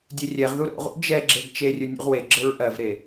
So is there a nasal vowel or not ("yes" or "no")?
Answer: no